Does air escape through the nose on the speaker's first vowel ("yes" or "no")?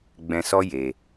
yes